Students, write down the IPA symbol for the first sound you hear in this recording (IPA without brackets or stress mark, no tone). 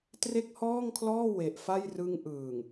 t